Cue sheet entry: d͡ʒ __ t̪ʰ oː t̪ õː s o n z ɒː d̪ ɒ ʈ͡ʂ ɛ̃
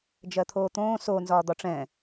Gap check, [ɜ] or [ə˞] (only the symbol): ɜ